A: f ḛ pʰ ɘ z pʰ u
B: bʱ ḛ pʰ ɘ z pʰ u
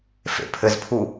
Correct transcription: A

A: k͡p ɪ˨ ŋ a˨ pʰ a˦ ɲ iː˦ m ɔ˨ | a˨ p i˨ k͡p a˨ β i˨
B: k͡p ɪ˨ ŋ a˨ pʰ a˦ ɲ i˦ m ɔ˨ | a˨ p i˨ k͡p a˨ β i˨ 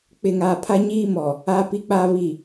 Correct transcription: A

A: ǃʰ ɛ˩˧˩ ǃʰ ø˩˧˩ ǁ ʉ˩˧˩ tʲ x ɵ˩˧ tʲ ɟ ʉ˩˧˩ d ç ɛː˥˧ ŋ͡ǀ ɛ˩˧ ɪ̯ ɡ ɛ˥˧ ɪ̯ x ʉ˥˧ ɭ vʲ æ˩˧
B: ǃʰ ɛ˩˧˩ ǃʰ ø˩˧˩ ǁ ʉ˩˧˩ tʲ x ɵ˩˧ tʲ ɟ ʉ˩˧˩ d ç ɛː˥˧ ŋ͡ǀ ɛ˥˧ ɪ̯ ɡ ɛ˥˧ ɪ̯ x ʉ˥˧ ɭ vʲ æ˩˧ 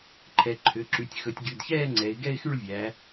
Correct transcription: A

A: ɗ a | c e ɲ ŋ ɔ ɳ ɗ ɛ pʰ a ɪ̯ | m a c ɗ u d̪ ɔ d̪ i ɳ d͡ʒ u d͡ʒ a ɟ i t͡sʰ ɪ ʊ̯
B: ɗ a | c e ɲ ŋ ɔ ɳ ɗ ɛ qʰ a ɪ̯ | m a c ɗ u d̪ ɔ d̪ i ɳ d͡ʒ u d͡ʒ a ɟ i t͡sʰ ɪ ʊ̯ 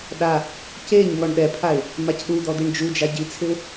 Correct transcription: A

